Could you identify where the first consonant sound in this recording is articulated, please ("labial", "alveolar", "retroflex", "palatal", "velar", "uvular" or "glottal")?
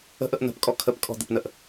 glottal